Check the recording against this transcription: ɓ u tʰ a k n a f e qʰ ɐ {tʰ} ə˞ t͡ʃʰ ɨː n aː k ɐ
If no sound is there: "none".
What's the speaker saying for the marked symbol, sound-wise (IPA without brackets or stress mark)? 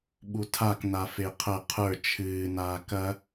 qʰ